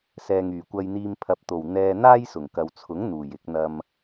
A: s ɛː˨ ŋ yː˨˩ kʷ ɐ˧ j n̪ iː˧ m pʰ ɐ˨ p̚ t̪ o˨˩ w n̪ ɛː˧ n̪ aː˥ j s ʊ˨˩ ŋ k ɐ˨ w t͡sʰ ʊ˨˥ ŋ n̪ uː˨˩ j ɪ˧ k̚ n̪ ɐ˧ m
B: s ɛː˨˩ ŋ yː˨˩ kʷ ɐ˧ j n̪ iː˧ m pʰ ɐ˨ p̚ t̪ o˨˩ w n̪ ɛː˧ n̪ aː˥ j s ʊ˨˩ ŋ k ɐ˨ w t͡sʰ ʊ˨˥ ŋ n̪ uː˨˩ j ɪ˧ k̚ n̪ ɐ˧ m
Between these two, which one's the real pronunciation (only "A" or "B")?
A